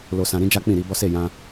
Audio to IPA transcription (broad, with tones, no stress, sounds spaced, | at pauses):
l o˨ s ã˨ ɾ ĩ˧ d͡ʒ a˦ k͡p ĩ˦˨ ɾ i˧ b ɔ˦ s e˦˨ j ã˧